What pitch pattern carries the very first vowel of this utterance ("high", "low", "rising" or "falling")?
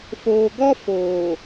low